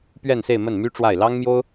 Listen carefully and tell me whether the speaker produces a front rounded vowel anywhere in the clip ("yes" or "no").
yes